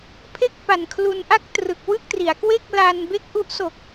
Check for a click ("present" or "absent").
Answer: absent